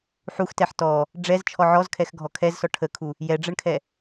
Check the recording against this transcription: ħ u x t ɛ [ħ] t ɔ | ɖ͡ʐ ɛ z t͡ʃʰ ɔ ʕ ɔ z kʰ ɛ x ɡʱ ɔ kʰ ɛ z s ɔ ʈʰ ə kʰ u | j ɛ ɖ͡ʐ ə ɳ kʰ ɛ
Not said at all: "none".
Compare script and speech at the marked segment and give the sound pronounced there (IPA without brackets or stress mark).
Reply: ħ